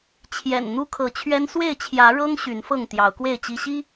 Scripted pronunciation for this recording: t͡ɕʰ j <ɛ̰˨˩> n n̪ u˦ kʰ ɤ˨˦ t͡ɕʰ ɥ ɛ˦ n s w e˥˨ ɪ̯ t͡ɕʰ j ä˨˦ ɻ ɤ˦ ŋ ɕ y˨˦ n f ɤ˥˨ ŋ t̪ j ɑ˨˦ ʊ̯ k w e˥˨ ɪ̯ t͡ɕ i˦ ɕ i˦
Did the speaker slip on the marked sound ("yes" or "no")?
no